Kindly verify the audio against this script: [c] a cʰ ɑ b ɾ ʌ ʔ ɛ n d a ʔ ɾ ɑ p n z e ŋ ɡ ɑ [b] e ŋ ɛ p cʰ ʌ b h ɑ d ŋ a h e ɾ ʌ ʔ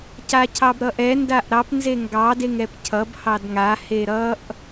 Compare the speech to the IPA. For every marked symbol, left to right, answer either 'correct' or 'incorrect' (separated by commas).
correct, incorrect